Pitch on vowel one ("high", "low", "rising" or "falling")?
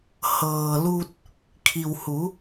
low